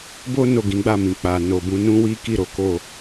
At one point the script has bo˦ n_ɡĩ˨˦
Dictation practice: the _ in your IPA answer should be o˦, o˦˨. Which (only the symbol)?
o˦˨